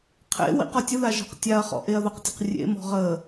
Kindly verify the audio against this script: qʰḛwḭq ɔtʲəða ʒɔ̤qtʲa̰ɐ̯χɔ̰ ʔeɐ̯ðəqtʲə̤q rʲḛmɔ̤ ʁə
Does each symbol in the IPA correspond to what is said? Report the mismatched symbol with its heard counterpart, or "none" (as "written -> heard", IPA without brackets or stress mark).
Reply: a̰ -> a